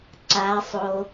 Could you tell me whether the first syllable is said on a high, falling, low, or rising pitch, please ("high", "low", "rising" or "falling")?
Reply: high